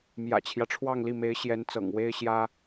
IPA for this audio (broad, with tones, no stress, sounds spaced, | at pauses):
m j ä̰˨˩ t͡ɕʰ j ä˦ ʈ͡ʂʰ w ɑ˥˧ ŋ l i˥˩ m e˧˥ ɪ̯ ɕ j ɛ˧˥ n t͡s ɤ̰˨˩ ŋ w e˥ ɪ̯ ɕ j ä˥